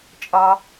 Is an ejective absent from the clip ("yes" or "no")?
no